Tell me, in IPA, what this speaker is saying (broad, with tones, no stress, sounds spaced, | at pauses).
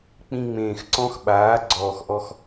k͡p ĩ˧ ŋ͡m ẽː˨ x ǀ ɔ̃˦ x ɓ aː˨˦ ɡ͡ǀ ɔː˨ x ʔ ɔ˧ x